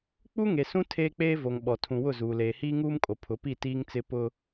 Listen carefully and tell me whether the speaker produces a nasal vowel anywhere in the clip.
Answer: yes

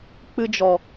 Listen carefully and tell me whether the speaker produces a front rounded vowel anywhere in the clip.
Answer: no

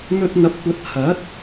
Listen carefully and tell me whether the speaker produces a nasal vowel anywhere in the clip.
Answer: no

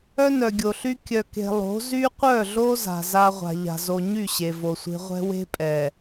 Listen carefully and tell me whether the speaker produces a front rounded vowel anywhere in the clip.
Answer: yes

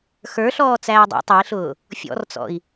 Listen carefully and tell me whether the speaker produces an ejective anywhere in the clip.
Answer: no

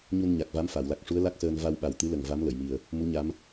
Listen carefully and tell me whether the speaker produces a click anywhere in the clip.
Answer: no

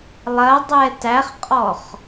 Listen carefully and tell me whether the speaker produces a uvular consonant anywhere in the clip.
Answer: yes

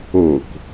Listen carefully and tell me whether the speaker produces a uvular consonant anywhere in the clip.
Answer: no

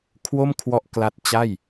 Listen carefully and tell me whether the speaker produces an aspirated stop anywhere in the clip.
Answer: yes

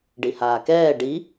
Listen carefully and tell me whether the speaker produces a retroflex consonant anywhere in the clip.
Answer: yes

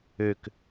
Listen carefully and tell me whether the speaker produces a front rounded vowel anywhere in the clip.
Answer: yes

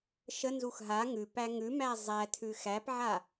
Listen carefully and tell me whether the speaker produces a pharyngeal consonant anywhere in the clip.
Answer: yes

